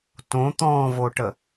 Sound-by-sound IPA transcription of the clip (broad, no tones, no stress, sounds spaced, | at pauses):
t õ t̪ ɔ̃ v o ʈ ə